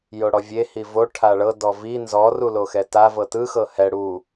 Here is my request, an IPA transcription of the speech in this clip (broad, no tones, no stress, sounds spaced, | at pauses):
j o ɽ ɔ vʲ e h i v o ʈʰ a ɭ ɤ d ɔ v i n z ɔ r u l o x ɛ t a v ɤ t ɯ x ɤ h ɛ ɽ u